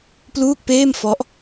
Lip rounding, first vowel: rounded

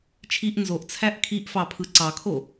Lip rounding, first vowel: unrounded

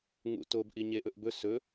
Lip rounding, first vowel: rounded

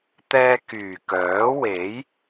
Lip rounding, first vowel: unrounded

